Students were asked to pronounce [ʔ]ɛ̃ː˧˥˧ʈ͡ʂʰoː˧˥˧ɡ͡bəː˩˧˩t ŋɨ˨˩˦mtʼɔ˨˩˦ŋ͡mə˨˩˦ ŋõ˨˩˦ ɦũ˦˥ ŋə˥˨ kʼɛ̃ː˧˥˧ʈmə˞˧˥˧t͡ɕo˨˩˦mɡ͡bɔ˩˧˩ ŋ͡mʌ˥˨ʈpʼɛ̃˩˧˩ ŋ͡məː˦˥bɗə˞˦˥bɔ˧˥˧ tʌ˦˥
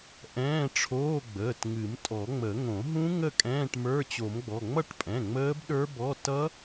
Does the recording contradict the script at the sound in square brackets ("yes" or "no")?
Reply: no